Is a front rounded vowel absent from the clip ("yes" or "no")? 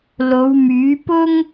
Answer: no